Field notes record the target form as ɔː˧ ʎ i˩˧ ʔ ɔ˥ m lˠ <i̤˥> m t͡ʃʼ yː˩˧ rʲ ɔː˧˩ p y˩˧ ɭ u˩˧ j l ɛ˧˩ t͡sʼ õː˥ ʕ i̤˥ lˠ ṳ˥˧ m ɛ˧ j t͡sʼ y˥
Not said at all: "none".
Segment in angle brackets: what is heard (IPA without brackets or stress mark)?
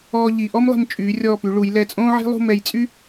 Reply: i̤˧˩